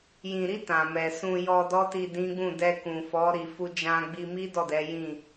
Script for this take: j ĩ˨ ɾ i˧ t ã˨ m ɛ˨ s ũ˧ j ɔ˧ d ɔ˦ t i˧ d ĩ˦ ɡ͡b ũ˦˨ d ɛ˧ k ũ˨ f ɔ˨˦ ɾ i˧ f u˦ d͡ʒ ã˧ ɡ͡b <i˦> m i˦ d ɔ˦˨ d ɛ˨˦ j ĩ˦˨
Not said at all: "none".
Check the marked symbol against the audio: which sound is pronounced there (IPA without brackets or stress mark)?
i˧